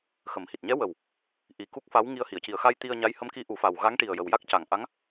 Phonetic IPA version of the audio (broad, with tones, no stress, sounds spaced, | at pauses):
x ə˨˩˦ m h i˨˩ t̚ ɲ ɛ˧˥ w ə˨˩ w | ʔ i˨˩ k u˦˥ k̚ f a˧˥ w ŋ i˧ ə̯ h i˨˩˨ ə̯ c i˨˩ ə̯ x a˧ j t̪ i˧ ə̯ ɲ a˧˥ j h ə˧˥ m k i˧˥ ʔ u˨˩˦ f a˨˩ w ɣ a˧˥ ŋ ʈ i˨˩ ə̯ j ə˨˩ w j a˦˥ k̚ c a˨˩ ŋ ʔ a˧˥ ŋ